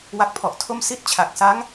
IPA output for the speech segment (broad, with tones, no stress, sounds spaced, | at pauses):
w a˦˥ k̚ pʰ ɔ˨˩ ʔ tʰ o˥˩ m s i˥˩ t̚ t͡ɕʰ a˨˩ k̚ s a˦˥ ŋ